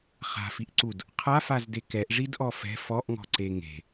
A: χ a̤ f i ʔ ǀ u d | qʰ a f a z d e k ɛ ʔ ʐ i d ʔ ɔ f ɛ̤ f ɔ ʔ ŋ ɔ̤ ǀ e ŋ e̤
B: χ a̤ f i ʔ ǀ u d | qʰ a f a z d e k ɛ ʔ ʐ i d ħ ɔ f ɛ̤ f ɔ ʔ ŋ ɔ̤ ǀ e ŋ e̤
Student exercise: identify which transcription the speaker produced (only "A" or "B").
A